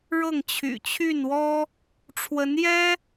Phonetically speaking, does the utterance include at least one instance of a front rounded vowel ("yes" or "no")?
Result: yes